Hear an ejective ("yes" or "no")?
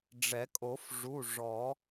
yes